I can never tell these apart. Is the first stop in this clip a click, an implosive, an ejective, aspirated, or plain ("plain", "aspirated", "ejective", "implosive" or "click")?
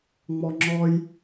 click